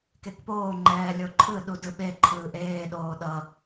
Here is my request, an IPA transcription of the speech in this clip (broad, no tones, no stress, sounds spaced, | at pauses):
k e k p oː ŋ͡ǃ ɛː lʲ o ǃʰ ɯ ɗ u d ɯ ɓ e ǃʰ ɯː ʔ eː ɗ oː ɗ ʌ